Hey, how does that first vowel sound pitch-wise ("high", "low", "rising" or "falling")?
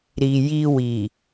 low